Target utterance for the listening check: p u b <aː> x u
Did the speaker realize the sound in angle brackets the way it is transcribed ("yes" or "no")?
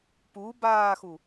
yes